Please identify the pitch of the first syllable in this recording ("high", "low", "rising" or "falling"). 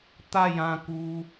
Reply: falling